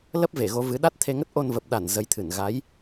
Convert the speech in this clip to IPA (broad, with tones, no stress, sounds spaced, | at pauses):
l ə˦˥ p̚ v e˧˩ ɣ o˨˦ v ɨ˨˦ ɗ a˦˥ t̚ t̪ʰ e˧ ŋ ə˦˥ t̚ ʔ o˧ n v ə˨˩ p̚ ɗ a˧˩ n z ə˨˦ j t̪ʰ ɨ˧˩ n ɣ a˨˦ j